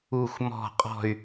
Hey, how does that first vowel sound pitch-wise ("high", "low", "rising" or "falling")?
falling